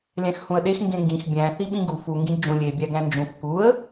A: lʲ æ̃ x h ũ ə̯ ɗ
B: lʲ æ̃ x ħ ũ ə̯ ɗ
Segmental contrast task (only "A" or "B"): A